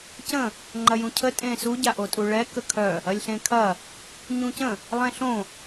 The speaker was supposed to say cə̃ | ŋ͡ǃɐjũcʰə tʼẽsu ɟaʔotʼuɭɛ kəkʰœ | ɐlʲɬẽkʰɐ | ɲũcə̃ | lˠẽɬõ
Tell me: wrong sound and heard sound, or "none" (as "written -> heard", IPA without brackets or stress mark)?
none